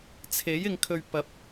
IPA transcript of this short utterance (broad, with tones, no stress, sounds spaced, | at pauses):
t͡sʰ e˨˥ j ɪ˧ ŋ kʰ ɵ˧ ɥ p ɐ˨˥ p̚